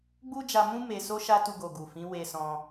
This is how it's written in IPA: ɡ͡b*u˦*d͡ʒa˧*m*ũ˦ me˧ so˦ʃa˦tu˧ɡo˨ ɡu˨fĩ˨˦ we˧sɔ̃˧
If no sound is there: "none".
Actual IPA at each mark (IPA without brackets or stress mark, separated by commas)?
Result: u˦, m